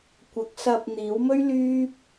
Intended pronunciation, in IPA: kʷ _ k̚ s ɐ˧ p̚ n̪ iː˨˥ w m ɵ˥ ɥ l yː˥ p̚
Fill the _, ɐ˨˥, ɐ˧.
ɐ˨˥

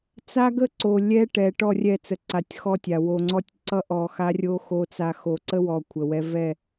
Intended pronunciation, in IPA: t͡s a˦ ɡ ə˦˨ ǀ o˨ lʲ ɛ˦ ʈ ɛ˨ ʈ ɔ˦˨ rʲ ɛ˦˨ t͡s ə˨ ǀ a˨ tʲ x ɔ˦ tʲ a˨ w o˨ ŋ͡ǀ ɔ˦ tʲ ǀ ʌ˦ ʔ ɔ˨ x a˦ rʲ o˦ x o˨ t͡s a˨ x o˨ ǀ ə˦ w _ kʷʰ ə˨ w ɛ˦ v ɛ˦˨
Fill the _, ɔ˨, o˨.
ɔ˨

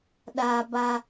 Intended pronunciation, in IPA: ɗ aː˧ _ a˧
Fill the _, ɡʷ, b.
b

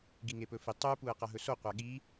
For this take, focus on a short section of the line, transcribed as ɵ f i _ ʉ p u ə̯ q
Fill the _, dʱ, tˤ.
tˤ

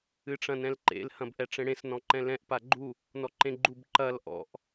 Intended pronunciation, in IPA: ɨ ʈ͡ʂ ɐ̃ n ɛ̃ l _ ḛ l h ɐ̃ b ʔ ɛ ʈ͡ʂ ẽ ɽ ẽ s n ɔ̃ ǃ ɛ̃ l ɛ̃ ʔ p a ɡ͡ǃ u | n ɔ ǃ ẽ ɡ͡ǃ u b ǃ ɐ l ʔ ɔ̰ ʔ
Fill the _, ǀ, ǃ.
ǃ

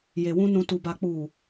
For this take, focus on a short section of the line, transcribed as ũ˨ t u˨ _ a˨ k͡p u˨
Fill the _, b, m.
b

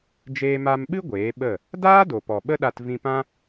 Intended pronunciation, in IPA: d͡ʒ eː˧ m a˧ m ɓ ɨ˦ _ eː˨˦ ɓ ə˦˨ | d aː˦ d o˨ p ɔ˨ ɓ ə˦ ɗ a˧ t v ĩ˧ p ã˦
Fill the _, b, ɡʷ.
ɡʷ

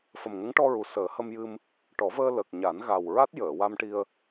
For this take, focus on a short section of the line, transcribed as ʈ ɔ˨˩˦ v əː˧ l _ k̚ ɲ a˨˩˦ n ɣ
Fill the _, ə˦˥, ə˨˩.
ə˨˩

